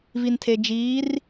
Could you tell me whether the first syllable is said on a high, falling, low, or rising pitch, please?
low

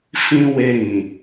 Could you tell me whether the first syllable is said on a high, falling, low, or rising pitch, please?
high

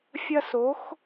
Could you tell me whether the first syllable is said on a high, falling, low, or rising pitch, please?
high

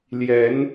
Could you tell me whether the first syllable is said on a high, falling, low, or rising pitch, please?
rising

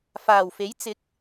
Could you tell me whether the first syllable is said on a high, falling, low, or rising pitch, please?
low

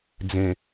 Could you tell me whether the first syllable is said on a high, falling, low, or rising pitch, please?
low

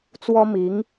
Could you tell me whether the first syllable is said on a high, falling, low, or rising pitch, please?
high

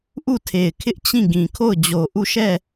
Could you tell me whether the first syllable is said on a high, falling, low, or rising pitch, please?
falling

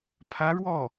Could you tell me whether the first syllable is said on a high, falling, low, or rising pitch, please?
rising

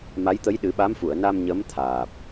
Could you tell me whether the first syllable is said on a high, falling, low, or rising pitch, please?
rising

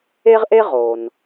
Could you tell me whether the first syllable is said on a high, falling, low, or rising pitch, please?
high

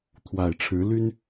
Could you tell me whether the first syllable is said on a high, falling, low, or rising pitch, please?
low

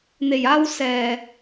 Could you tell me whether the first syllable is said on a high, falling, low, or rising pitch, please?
low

